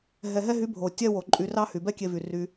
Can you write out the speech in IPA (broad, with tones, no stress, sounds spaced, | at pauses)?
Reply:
ɦ ɛ˨ ɦ ɛ˧ ɦ y˨˦ bʱ o˨ tʲ ɛ˦ w o˨ ǃʼ y˧ r ɑ˦ h y˨ b ɛ˦ kʲ e˧ v y˨ r y˧